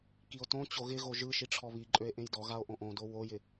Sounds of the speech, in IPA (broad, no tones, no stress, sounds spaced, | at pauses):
k i o̯ t õ t͡ɕ o ɣ ɪ ɣ o ʒ ɯ ʃ i ʈ͡ʂʰ ɔ β i ǃʼ ø e̯ ʔ ẽ j d ɔ ɣ a o̯ ʔ õ ʔ õ d o w o j ɪ